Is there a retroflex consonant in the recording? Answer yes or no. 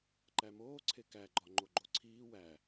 no